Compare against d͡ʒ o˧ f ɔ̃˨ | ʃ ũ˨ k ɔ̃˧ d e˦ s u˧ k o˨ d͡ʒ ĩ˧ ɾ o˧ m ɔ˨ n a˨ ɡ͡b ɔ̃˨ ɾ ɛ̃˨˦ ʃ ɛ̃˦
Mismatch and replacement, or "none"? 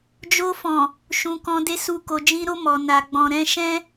none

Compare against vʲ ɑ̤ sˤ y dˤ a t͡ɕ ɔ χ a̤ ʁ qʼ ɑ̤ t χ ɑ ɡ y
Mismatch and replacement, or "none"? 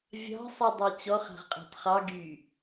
none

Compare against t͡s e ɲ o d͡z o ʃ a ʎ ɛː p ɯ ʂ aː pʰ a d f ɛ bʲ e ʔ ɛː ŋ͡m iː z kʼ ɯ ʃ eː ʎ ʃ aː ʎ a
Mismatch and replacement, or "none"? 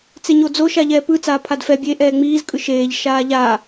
ʂ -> t͡s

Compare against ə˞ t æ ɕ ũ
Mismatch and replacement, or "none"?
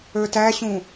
none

